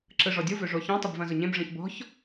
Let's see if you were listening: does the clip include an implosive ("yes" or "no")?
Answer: no